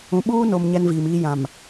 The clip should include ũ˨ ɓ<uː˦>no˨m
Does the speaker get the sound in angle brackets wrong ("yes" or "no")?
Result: no